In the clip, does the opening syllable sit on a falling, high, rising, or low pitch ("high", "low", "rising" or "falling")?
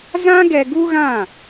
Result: high